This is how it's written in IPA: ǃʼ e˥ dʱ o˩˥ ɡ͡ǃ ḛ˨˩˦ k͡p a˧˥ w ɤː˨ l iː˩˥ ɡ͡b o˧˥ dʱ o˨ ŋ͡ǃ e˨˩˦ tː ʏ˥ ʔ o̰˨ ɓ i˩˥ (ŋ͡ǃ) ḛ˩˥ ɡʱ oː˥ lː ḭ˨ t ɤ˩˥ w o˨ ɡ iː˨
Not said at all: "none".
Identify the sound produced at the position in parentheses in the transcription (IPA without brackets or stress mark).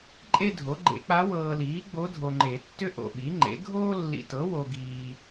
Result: ŋ͡ǃ